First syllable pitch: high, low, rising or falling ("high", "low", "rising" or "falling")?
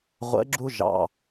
rising